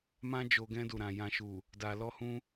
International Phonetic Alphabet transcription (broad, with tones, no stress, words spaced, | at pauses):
mã˧d͡ʒo˨ ɡɛ̃˧du˨ɾã˨ jã˨ʃu˨ | da˨lɔ˧hũ˧